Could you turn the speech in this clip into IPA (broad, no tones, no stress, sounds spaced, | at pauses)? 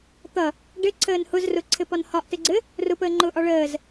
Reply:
t̪ ʌ | ɖ ɘ ǀʰ əː n h ʊ z r ʊ ǀʰ ɘ p ɒ n h ɒ ʔ t ɘ ɡ͡ǀ ɘ | r ʊ p əː ŋ͡ǃ ʊː ʔ ɒ ɭ əː z